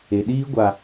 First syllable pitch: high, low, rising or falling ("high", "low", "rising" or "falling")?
low